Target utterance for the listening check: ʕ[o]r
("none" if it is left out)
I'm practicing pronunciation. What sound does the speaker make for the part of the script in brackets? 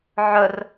ɵ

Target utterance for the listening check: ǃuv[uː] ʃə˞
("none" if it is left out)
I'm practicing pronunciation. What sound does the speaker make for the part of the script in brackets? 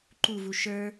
u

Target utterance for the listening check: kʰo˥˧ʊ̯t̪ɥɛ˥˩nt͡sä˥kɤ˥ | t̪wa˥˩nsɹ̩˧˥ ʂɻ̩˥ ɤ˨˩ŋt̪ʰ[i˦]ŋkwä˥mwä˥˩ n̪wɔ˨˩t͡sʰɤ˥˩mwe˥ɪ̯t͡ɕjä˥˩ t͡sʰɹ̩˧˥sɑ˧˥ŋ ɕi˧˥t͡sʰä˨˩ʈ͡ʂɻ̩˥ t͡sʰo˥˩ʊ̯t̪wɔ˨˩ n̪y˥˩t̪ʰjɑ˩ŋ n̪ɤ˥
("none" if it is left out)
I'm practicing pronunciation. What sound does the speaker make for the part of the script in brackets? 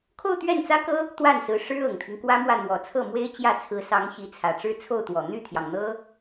i˦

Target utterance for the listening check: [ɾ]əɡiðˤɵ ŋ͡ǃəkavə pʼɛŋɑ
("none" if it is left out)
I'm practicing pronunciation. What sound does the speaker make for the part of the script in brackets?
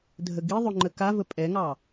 dʱ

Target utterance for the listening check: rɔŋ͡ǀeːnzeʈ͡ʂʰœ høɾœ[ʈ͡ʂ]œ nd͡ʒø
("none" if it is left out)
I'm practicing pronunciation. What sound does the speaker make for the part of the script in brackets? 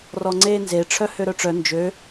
ʈ͡ʂ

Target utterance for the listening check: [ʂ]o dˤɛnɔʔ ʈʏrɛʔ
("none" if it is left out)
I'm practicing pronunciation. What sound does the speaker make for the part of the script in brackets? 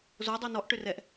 z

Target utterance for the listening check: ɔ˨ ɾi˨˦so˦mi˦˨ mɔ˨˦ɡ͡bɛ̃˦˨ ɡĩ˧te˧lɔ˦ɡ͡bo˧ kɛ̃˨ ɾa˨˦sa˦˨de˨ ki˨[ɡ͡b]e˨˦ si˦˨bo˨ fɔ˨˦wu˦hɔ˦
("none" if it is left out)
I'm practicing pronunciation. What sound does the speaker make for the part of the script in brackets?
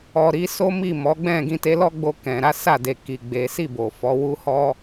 ɡ͡b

